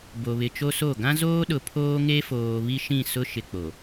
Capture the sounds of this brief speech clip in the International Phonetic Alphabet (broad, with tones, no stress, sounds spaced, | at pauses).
b o˨ β ɪ˨ t͡ʃ o˦ s o˦˨ ɡ ã˦ z oː˦ ɗ ʊ˨ pʰ oː˦ ŋ e˦ f oː˨ β i˦ ʃ ĩ˦˨ s ʊ˦ ʃ ɪ˦ k͡p o˨